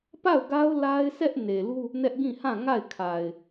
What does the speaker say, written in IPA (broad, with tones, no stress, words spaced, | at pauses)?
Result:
pa˦˨ʊ̯ɡa˦ʊ̯ la˦ɪ̯sɛ˦ʔ ne˨lu˦ | nɛ˦ʔɡĩ˦˨hã˦˨ ŋa˦˨ɪ̯kʰa˨ɪ̯